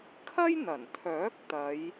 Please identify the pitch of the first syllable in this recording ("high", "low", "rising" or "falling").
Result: high